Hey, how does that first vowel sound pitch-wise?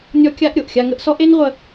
high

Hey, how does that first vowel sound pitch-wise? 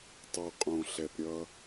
low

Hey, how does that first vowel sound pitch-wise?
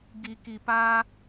low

